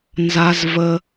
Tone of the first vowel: high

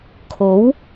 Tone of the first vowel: rising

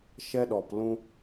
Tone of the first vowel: high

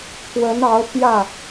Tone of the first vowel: rising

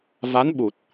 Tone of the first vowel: rising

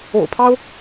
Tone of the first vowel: low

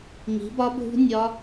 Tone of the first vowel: rising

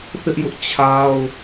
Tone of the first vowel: high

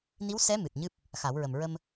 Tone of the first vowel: rising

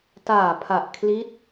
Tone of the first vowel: low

